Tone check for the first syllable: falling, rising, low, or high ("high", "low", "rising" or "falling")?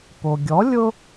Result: low